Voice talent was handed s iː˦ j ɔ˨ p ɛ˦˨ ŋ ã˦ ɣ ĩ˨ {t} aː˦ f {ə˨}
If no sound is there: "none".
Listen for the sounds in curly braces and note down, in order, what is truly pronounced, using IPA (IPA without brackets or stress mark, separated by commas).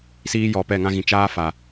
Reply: t͡ʃ, a˨